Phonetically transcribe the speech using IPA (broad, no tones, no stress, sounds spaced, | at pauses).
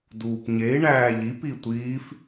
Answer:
d uː p ɲ e i̯ ɳ æː ʎ i p i tʷ iː f